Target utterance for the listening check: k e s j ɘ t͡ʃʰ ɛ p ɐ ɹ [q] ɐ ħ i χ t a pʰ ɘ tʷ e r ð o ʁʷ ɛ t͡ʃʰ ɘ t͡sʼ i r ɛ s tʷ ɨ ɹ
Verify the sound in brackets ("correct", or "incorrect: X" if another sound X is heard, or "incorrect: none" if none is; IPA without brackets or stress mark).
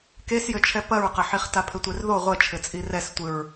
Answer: correct